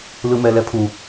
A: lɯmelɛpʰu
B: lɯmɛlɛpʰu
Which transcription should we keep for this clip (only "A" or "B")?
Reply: B